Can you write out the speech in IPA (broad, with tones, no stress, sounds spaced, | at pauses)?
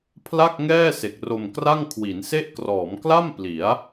pʰ l a˥˩ k̚ ŋ ɛː˥˩ s e˨˩ k̚ r o˧ m k r a˥˩ ŋ kʰ w i˩˦ n s e˥˩ ʔ k r ɔː˩˦ m k l a˥˩ m p l i˩˦ a̯